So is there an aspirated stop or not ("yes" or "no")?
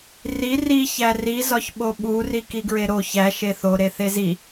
no